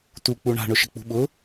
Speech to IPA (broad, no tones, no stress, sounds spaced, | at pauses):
t u k͡p u ɳ a̤ ɳ ʊ ʃ ə k͡p ṳ ɓ ʊ